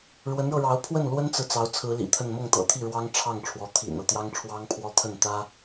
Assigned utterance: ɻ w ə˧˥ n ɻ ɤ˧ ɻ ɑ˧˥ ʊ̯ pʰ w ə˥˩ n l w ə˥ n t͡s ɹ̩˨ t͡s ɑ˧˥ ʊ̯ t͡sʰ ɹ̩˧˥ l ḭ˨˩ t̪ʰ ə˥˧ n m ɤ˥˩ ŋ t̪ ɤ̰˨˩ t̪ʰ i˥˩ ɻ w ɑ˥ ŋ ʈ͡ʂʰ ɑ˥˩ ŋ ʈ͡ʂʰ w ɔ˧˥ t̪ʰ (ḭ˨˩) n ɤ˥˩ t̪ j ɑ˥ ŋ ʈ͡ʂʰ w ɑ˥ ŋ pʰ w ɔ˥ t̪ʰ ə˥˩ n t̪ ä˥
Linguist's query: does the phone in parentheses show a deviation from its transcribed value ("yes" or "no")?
no